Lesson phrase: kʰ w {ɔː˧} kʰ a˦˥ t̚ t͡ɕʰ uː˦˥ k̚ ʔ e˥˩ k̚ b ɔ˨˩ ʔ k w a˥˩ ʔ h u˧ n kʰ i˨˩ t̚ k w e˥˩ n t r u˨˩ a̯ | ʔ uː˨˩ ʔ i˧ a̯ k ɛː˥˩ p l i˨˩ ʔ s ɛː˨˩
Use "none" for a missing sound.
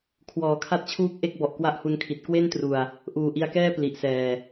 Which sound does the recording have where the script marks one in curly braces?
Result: ɔː˩˦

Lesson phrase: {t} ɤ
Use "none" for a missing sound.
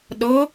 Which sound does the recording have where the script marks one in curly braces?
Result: ɗ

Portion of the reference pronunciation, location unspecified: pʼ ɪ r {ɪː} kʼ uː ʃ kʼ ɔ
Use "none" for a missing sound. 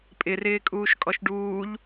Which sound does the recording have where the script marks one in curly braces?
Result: ɪː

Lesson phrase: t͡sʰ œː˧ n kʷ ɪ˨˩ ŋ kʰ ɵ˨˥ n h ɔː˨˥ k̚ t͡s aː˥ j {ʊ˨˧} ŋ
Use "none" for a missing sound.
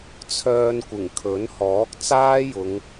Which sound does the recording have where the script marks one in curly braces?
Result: ʊ˨˧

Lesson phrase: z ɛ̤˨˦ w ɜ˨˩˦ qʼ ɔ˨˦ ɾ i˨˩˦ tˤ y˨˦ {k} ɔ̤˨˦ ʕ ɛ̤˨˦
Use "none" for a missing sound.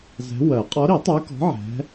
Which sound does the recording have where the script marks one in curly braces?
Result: k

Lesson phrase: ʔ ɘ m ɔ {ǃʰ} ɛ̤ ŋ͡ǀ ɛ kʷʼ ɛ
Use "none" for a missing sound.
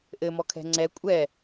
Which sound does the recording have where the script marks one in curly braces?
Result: kʰ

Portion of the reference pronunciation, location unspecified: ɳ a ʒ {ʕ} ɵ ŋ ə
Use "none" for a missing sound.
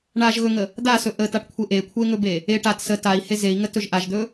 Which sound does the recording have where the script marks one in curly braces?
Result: ɣ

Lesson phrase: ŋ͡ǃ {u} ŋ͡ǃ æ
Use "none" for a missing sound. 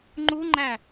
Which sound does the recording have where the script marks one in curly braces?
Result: u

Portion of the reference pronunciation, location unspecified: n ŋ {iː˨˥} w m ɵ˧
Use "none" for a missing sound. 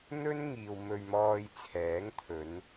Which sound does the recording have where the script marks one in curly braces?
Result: iː˨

